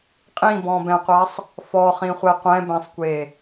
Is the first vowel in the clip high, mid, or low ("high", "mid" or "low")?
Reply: high